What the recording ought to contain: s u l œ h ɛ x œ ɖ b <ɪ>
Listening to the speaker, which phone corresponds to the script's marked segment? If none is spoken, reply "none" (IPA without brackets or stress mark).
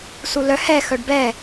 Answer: ɛ